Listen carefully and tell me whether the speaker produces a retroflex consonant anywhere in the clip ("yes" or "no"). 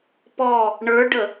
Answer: yes